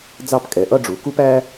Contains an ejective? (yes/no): yes